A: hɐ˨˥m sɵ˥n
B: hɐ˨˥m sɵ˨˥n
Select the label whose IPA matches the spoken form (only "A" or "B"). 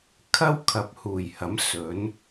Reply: B